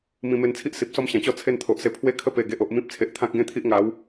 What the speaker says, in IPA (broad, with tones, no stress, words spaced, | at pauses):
mĩ˧me˧nt͡sʰi˦ʔ si˨p̚sɔ˥˧mɕã˨˩t͡ɕɔ˥˧ t͡sʰe˥˧nt̪ʰo˨ʔse˧ pʰwe˥˧kʰə˥˧ pe˨˩ɡe˨ʔo˨ʔ mĩ˦p̚t͡sʰe˨ʔt̪ʰã˦k̚ ɡẽ˥˧t̪ʰi˦ʔ ŋa˨˦w